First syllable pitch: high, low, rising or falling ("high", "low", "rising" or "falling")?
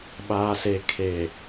low